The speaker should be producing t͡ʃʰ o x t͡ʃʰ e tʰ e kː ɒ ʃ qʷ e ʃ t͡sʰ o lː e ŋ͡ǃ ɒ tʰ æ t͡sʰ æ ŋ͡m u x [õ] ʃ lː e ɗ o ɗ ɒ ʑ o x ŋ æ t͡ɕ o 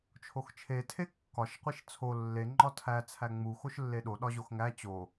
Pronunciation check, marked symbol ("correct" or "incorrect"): incorrect